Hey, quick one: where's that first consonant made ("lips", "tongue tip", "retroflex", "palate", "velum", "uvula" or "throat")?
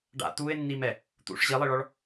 retroflex